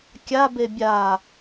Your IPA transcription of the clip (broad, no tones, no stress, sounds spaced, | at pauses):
kʲ a b e bʲ a